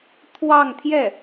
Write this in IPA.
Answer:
t̪ʰ w ɑ˥˧ ŋ t̪ʰ j ɛ˥˩

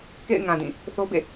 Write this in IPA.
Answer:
k ḛ˦˨ ɪ̯ ŋ ã˨ d ĩ˦˨ | θ o˦ b ḛ˦˨

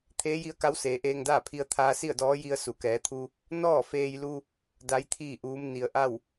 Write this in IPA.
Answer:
t̪ʰ eː˧˥ j i˧˥ ə̯ k a˧˥ w s eː˩˧ ʔ eː˧ ŋ d aː˥˨ pʰ i˧ ə̯ t̪ʰ aː˧ s i˥˨ ə̯ d ɔː˧˥ j i˧ ə̯ s u˩ k ɛː˩˧ t̪ʰ u˧ | n ɔː˥˨ f eː˧ j l u˧ | d a˧˥ j t̪ʰ iː˥˨ ʔ uː˧˥ m n i˩ ə̯ ʔ a˥˨ w

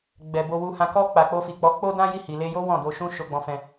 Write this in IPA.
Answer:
ɡ͡b ɛ˨ b o˧ w u˧ h ã˨ k ɔ˧ k͡p a˨ k͡p o˧ f i˨ k͡p ɔ˨˦ k͡p o˦ d ã˦ j i˦˨ h i˨ l e˧ j o˦ w ɔ̃˦˨ d o˧ ʃ ũ˦ ʃ o˧ ɡ͡b ɔ̃˧ f ɛ̃˧

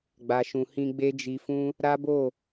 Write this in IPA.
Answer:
ɡ͡b a˧ ʃ ũ˧ h ĩ˦ ɡ͡b e˦ d͡ʒ i˧ f ũ˦ | ɾ a˦ b o˦˨

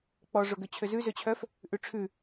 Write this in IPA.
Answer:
k͡p ɔ ʐ o ɡ ø t͡ɕʰ ø z ʉ z ø t͡ɕʰ œ f | ʔ ʉ ʈ͡ʂʰ ʉ

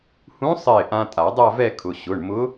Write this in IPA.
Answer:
h ũ˧˥ sˤ ɪː˧˩ ʔ ã˧ tʼ a˨˩˦ dˤ a˥˧ v ɛ˥˧ kʰ ʊ˩˧˩ ɕ ʊ˩˧˩ ɳ m ʊ˧˥

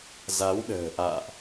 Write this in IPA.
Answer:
z a˨˦ w ɗ ə̤ː˨˩ ʔ a̰ː˧˨ ʔ

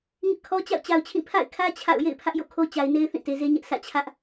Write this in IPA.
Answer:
ŋ ɪ˦ ʔ kʰ ɔ˦ t͡ɕ a̰˦˨ ʊ̯ t͡ɕ a˨ ʊ̯ t͡ɕʰ ĩ˦˨ pʰ a̰˦˨ ɪ̯ kʰ ä˦ t͡ɕʰ a̰˦˨ ʊ̯ j ḛ˦˨ ɪ̯ pʰ ä˦ ʔ j o̰˦˨ kʰ o˦ t͡ɕ a˨ ɪ̯ n e˦ ɪ̯ θ ĩ˦˨ t e˨ z e˦ ɲ ɛ˦ ʔ sʰ ä̰˦˨ t͡ɕʰ ä˦ ʔ

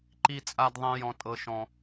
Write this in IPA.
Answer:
ǃ i˦ t͡sʼ a˦ d ðˤ ɛ̃˦ j ɔ̃˦ tʼ ɤ˦ ʃ ɔ̃˦

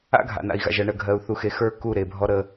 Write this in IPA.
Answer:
a̰˦ ɡʱ a̰˨ n a̰˨ i̯ ɣ a̰˨ ʒ ɜ˨ ɳ ɜ˨ ɡʱ ɜ˨ u̯ θ u˨ x e˨ x ə˞˦˨ k u˦˨ ɾ e˨ bʱ ɔ˦ ɾ ə˦

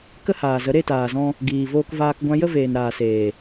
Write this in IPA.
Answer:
k ə˦ h aː˨ z ə˨˦ ɾ e˦˨ t aː˨ z ɔ̃˧ | ɡ iː˨ v oː˧ k v aː˧ k ɡʷ ã˧ j ə˦ v eː˨ n ɾ aː˨ s eː˨

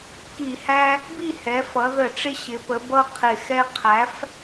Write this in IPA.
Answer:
k i˧˩˧ h æ˦ | b i˥˨ h ɛ˩˧ f ʌ˩˧ ð ə˧˩˧ ʈ͡ʂ ɪ˦ ɕ ɪ˩˧ p ə˩˧ b ʌ˦ qʰ ɪ˨˩ x ɛ˦ qʰ æ˩˥ f

